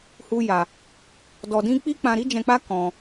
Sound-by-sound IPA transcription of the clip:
h u˦ j a˧ | d ɔ˧ d ĩ˦ k͡p i˦ k͡p ã˧ ɾ i˦ d͡ʒ ɛ̃˧ k͡p a˦ k ɔ̃˧

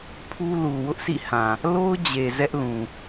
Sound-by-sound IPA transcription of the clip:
pʰ u˦ l u˨ w ʊ˦ ʔ s ḭ˦˨ h ã˨ | l o˦ ʊ̯ d͡ʑ e˨ z ɛ˦ ʔ l ũ˨

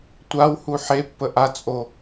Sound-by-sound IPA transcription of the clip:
tʷ a w h u ħ e pː ə ʔ a t͡sʼ o

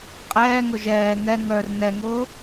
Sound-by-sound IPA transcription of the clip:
qʼ ɛː ŋ ʊ ʒ ɛː ŋ ɛ ŋ œ r n ɛ ŋ ʊː

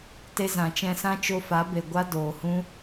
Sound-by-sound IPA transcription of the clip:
t e˧ z ã˨ t͡ʃ ɛ̃˧ s ã˦ t͡ʃ o˧ f a˨˦ b e˨ ɡʷ a˦ d oː˨ h ũ˦

